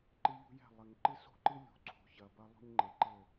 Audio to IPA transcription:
ǃɨ˦ʎṳ˦jɛ̤˦˨ lˠɘ˨ŋǃɨ˦so̤˦ǃɨ˦ lʲṳ˨ǀʰo̤˨çɐ˨ bɐ˦lˠṳ˦ɲ ŋ͡ǃe˨ǃɘ˦˨

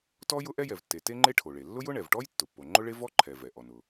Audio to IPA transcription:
tɔ˥ jʊ˥ʔɛ˥jɛ˩vtːe˩ te˥ŋ͡ǃe˥ʈʰo˩ɭe˩ lːʊ˥jʊ˥ ɳɛ˩vʈɔ˥j tːʊ˩pːo˩ŋ͡ǃʊ˥ɭe˥ vɔ˥ǃʰɛ˩ vɛ˩ ʔɔ˩nʊ˩

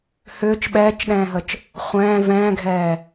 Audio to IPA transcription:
hʏːt͡ʃ ɓɛːt͡ʃɗɛ̃ːɦət͡ʃ | χʷɛ̃ː vɛ̃ːɡʱɛː

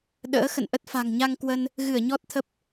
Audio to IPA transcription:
ɗə̰ː˧˥xə̰˧˨nʔə˦˥t̚ fa̤˨˩ŋɲa˧ŋkwə˧n | ɣɨ˧˩ə̯ ɲɔ˦˥t̚t̪ʰə˦˥p̚

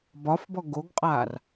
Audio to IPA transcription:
bɒfbɔ ɡoɡqʼaːr

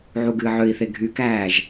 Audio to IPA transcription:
ʕuɡɨːʕøi̯θe ɡʱykæːʒ

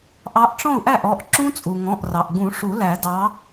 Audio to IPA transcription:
ʔɑ˨˦ʔʈ͡ʂɔ̃˥˩u̯ ʔæ˥˩ʔɔ˩˧˩ʔǁũ˦˥ t͡sʼu˩ŋɔ̃˩˧˩ʔrɑ˩ʔɡũ˨˩˦ ʂu˨˩˦læ˨˩˦dɑ˨˦

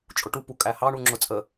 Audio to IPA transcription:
t͡ʃʼʊʈupu kʼæhɑ ɳuŋ͡ǁʊt͡sʼə

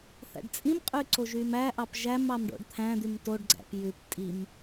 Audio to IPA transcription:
θæ̰ɖt͡sʼĩmqʼy ǀoʒymæʔɑp ʒæm ɑmɖo̰ɖt̪ʰæ̃d̪ym toɖɡ͡ǀæ̰p jʉp tʼim

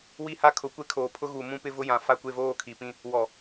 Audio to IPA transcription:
wi˦ha˦ kʰʊ˨˦kʷe˦kʰoː˨pʰʊ˦ ɣu˨ mũ˦pɪ˦ vʊ˦jã˨ fa˦˨kʷe˦˨voː˦˨ kʰi˨pĩ˦ | wɔ˨

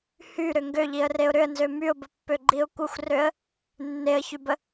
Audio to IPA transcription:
hyɾʏ ŋɡøʎiə̯reʊ̯ ɾʏə̯nzø myʊ̯bəpːøɡ͡ǃiʊ̯ kʷəxʷrøə̯ | nːeə̯çybə

